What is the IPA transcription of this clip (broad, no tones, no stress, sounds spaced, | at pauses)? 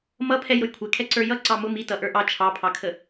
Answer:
m ʌ pʰ ɛ j ɾ ʊ j kʷʰ ɛ kʰ ɛ ǀ ə˞ j ʌ ǀ ɑ m ʊ m i t ʌ ʔ ə˞ ʔ ɑ t͡ʃʰ ɑ pʰ ɑ kʰ ə